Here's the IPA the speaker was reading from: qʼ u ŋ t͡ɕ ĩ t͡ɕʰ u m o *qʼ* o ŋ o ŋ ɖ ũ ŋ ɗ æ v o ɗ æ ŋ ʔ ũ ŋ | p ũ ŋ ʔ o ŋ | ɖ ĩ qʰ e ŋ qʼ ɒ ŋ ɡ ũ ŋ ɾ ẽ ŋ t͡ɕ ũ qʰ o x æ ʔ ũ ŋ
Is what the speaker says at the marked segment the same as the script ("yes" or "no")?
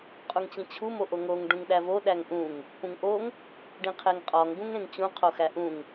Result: no